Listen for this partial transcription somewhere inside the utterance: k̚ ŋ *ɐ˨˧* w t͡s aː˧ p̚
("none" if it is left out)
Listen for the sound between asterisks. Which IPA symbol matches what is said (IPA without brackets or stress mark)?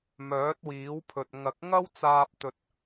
ɐ˥